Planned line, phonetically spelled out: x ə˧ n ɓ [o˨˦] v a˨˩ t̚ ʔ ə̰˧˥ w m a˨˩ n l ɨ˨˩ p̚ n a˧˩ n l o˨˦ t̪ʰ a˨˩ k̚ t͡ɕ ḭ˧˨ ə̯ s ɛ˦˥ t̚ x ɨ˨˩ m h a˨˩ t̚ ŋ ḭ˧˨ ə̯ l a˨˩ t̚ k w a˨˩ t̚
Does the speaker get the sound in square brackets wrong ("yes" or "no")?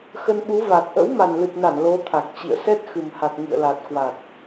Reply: yes